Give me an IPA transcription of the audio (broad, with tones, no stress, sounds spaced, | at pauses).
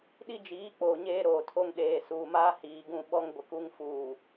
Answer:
ɗ i˦ d͡ʒ iː˨˦ k͡p oː˨ ɲ eː˦ ɾ oː˨ tʰ o˦ ŋ ɗ eː˨ s uː˨ m aː˦ h iː˨ ɡ ũ˦˨ ɓ ɔ˦ ŋ ɡʷ ɪ˨ k u˦ ŋ f uː˨